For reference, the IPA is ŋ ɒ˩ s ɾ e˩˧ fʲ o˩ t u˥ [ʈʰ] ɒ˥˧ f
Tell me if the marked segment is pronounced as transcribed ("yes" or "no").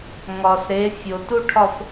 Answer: yes